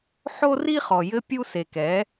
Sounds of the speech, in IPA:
ħ o˦ r i˦ χ ɔ˨ j ɘ˦ pʲ u˦ s e˨ k ɛ˨˦

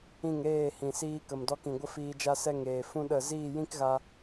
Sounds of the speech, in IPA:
ĩ˦˨ ŋ ɾ eː˦˨ h ĩ˨ s iː˧ k ə˨ m d ɔ˧ k ĩ˨ ɡʷ ə˦ f iː˧ d͡ʒ a˦ s ɛ˦ ŋ eː˨ f ũ˦ ɗ ə˦˨ z iː˦˨ j ĩ˦ k ɣ a˧

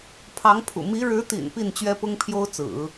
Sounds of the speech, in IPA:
pʰ ɑ˧˥ ŋ pʰ ṵ˨˩ m i˧˥ ɻ ɻ̩˧˥ t̪ ḭ˨˩ n p i˥˩ n t͡ɕ ɥ ɛ˥ p ʊ˥ ŋ pʰ j o˥ ʊ̯ t͡s ɹ̩˨˩˦

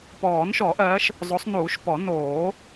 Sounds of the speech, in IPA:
p ɔː˨˩˦ n ʃ ɔ˨˩˦ ʔ ɜ˨˦ ʃ | zˤ o˨˦ sˤ n uː˨˩˦ ʃ p ɔ˨˩˦ n oː˨˩˦

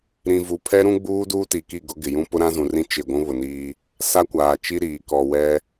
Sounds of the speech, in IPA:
ɾ ĩ˨ v u˨ pʰ ɛ˦ ɾ ũ˦ ɡ͡b uː˦ d uː˦ t i˨ k i˦˨ ɡ ʊ˦ ɡ ɪ˨ j ũ˦ p ʊ˦ ɾ ã˦ z ũ˨ r ĩ˦ t͡ʃ ɪ˦˨ ɡʷ ũ˦ β ʊ˨ n iː˦ | s a˦ kʷ aː˨ t͡ʃ i˦ ɾ iː˨ k ɔ˨ w ɛ˦

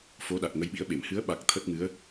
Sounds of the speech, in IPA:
f o˨˦ ɗ a˨˩ k̚ ŋ ə˨˦ j ɓ ḭ˧˥ ə̯ ɓ e˧˩ m h ɨ˨˦ ə̯ ɓ a˨˩ k̚ t̪ʰ ə˦˥ t̚ ŋ ɨ˨˦ ə̯

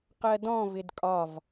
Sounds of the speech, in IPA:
q ɜ d ɔ̃ v ɪ d kʼ ɒ v

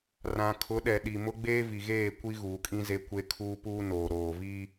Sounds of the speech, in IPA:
r ã˨ kʰ ʊ˨˦ ɗ ɛ˨ ɗ i˨ m ʊ˦ ɡ͡b eː˦ v i˨ ɣ eː˦˨ kʷ i˦ ɣ uː˨ kʼ ĩ˦ z e˦ kʷ e˦ kʰ uː˦ p uː˦ n oː˨ ɾ oː˨ v i˦

